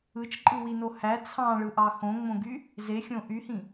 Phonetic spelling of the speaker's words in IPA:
ɯ t͡ʃ ǃʼ ɯ w i n o h æ t͡sʰ ɑ̃ ɭ ɯ ʔ ɑ x õ ŋ͡m õ ɡ y | z e xʲ õ ʔ y h ĩ

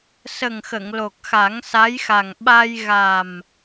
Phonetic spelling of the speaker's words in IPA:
s ə˨˩ ŋ x ə˨˩˨ ŋ l o˨˩ k̚ x a˨˩˦ ŋ s a˧˥ j x a˨˩ ŋ ɓ a˧ j ɣ a˨˩ m

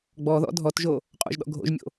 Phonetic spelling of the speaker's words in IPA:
ɡ͡b ɔ ð ɔ̰ dʱ ɔ t ʒ o | qʼ o̰ ʒ ɗ ɔ̰ ɡʱ o̰ ʒ mʲ o̰

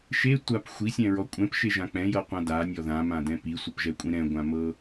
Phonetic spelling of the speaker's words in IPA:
ʃ e tʷ a p xʷ i sʲ ɛ̃ ɹ ɔ kʷʼ ɛ̃ p ʃ e ʒ ã k͡p ɛ̃ j ɤ qʷ ã d a nʲ ɔ ð ã m ã d ɛ̃ p i sʷ ɤ p ʒ ɛ kʷʼ ĩ ɾ ɛ̃ ɡʷ ã m ɤ

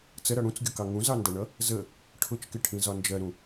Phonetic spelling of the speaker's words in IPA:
t͡s ə ɾ ʌ ɽ ũ t͡s ɡʲ ʊ k ɑ ŋ ũ z ɑ n d ʌ ɳ ʌ | z ə | ʈʰ ʊ t͡ʃ k ɪ ʈʰ ĩ z ɒ n d͡ʒ ɜ ɾ ũ

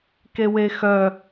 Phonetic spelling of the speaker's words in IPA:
k e w e x œ

